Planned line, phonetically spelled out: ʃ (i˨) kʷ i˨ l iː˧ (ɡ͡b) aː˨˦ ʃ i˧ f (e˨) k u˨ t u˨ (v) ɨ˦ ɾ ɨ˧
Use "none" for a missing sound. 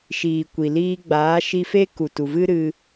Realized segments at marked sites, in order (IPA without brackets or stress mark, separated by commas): iː˨, ɡ͡b, e˦, v